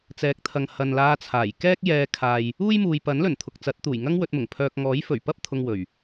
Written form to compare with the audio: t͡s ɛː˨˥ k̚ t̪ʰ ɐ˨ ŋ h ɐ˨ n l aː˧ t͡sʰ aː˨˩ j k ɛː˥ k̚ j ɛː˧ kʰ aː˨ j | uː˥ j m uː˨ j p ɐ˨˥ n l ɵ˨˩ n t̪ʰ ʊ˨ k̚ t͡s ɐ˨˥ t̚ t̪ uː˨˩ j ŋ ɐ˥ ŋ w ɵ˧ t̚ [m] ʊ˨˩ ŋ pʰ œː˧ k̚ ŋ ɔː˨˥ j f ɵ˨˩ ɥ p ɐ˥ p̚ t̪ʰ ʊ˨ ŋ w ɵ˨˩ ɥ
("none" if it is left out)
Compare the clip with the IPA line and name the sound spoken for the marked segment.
m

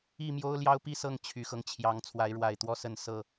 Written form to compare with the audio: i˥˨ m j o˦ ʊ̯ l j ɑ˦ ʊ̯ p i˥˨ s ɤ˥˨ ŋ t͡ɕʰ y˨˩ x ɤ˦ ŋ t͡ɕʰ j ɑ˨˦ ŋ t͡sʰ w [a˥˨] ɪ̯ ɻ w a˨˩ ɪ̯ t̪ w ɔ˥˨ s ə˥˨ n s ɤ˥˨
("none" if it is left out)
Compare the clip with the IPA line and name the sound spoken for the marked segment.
a˨˦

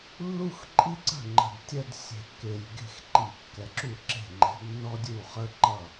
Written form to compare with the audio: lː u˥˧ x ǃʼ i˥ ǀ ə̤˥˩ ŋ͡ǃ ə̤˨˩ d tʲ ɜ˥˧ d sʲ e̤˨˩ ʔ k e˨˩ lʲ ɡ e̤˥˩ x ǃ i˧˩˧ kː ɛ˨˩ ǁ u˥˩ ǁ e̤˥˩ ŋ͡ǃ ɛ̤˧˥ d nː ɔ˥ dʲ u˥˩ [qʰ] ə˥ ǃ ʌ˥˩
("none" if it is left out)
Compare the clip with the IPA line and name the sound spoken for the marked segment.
χ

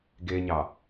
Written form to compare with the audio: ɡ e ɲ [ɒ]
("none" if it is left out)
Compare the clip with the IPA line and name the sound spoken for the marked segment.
ɑ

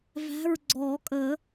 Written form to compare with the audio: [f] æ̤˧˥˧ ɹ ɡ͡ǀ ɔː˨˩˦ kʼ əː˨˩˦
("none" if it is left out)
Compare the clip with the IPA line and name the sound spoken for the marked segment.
v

